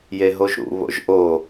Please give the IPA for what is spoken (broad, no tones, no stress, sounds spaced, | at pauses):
j e ɦ o ʒ ɾ ṵ β o̰ ʒ ʔ o